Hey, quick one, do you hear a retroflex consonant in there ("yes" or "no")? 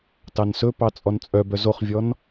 no